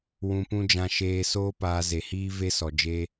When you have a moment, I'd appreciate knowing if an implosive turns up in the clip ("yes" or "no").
no